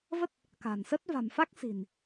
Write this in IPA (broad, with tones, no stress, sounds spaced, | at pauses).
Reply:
v ə˦˥ t̚ | k a̤˨˩ n s ə˦˥ t̚ v a̤˨˩ m f a˦˥ k̚ s i̤˨˩ n